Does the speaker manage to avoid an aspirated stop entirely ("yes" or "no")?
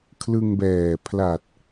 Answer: no